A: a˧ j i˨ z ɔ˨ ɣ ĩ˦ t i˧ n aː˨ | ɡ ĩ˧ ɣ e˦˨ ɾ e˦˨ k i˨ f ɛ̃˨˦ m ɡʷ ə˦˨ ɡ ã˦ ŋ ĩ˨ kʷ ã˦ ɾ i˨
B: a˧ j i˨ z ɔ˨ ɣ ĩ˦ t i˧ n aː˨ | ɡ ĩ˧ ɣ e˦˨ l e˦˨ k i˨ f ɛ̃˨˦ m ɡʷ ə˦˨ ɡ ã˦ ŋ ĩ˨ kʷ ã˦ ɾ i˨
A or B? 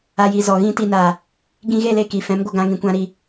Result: B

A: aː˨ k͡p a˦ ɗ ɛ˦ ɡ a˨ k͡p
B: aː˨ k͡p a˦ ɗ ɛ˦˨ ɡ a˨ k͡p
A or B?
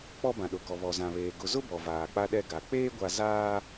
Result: A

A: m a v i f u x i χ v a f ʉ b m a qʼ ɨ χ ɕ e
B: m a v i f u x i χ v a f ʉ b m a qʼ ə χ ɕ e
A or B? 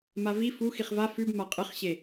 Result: A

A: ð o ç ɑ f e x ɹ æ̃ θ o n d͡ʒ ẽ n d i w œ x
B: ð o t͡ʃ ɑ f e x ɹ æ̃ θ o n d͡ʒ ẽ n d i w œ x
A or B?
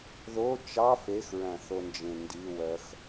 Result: B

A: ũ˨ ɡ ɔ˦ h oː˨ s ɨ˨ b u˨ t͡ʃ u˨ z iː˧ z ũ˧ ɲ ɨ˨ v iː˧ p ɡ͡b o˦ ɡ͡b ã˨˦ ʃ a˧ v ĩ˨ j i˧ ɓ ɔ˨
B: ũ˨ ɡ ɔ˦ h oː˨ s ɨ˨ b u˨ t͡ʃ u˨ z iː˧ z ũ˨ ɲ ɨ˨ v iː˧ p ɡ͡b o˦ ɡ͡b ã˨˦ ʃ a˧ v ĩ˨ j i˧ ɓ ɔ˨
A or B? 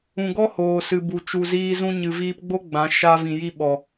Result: A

